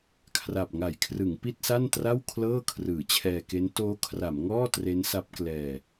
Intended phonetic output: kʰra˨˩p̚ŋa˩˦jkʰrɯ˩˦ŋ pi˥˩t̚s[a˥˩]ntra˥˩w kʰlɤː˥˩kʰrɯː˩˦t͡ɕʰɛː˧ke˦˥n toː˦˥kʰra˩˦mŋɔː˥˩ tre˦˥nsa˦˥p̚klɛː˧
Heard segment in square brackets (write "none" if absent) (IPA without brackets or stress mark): a˥˩